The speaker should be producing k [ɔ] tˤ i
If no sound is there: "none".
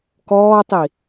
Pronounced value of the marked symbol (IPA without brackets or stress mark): ɔː